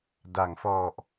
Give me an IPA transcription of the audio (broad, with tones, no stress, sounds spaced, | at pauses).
d a˩˦ ŋ f ɔ˨˩ ʔ